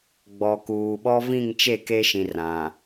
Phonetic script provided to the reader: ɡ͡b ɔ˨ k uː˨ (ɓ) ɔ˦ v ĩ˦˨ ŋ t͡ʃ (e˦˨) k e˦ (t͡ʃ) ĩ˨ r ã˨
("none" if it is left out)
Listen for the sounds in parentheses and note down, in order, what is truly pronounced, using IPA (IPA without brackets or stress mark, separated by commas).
ɓ, e˦˨, ʃ